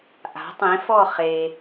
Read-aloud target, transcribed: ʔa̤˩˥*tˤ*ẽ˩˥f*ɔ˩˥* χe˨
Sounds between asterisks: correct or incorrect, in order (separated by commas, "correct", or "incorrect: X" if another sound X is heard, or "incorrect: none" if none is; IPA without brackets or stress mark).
correct, incorrect: ɔ˥˨